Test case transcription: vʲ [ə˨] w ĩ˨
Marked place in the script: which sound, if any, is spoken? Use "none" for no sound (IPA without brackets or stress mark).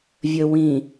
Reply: ə˨